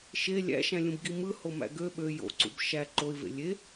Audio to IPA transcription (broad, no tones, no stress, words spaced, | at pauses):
ʃe lʲæ̰ʃæ̃lʲũbɡi mɯhomæ̰ ɡø ɓø jo̰ǀṵb ʃæ ǃoɪ̯vḛ lʲe